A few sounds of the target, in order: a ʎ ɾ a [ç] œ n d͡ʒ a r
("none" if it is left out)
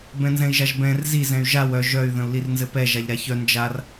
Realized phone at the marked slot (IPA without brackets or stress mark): ç